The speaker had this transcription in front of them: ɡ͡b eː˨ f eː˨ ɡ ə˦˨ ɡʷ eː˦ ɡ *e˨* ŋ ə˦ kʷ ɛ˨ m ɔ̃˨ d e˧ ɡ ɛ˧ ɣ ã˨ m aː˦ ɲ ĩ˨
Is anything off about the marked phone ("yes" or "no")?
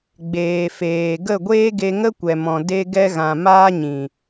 yes